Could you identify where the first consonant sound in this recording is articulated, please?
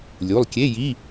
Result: alveolar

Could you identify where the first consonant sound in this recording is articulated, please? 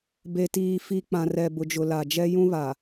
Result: labial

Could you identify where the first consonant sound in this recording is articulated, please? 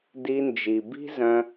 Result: alveolar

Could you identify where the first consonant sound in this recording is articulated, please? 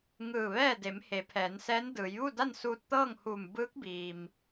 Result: velar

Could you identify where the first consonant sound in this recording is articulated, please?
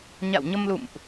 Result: palatal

